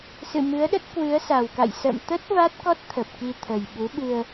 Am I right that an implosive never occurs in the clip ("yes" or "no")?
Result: no